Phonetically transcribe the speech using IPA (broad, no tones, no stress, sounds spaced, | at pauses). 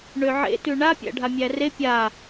ɳ ø ʕ ḛ t ʉ ɳ a pʲ æ̰ ɖʱ a mʲ æ r e pʲ a